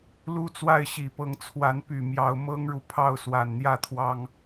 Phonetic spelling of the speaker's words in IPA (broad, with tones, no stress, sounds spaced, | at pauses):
l u˦ t͡s w a˥˨ ɪ̯ ɕ i˨˩ p ɤ˨˦ ŋ t͡sʰ w a˨˦ n p y˨˩ m j ɑ˨˦ ʊ̯ m ɤ˦ ŋ ɻ u˨ pʰ ɑ˥˨ ʊ̯ s w a˨˩ n n̪ j ä˥˨ t̪ʰ w ɑ˦ ŋ